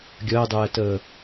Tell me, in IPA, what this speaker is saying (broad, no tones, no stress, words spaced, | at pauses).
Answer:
ɡʲəːdˤɛːtəː